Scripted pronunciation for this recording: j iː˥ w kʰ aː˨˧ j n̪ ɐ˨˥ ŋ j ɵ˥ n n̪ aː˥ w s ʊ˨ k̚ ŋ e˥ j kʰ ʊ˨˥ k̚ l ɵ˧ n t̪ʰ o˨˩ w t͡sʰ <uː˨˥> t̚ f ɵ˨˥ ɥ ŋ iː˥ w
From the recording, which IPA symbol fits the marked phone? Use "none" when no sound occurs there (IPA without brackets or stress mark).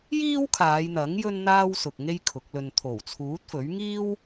uː˨˥